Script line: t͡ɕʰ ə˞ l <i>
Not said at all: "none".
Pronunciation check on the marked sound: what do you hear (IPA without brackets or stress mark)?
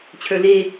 e